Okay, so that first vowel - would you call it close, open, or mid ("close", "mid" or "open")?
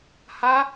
open